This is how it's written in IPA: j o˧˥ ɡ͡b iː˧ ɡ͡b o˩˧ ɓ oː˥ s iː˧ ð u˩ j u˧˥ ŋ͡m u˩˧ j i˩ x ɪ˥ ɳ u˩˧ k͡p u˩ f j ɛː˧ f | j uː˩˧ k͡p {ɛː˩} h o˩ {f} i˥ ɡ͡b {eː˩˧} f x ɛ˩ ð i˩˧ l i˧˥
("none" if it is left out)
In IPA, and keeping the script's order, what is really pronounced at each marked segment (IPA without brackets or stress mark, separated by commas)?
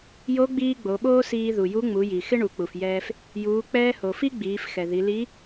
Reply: ɛː˧, f, iː˩˧